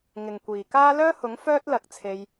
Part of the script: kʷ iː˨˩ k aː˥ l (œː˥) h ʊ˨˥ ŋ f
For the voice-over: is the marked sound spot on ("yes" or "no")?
yes